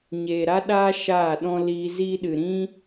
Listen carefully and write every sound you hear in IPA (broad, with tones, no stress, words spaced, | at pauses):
ɲeː˨ ɾa˦ɗaː˦ ʃaː˦˨ɗɔ̃˦ liː˧ ziː˦ɗɨ˨ ɾĩ˦